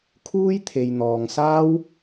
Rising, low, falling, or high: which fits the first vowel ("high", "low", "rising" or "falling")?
high